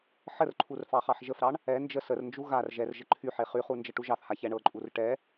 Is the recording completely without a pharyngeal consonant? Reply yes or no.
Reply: no